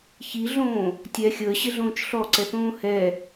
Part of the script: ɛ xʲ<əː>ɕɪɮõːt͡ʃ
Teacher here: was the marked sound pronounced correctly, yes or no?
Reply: yes